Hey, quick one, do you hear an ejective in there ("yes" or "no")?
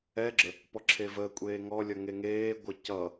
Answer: yes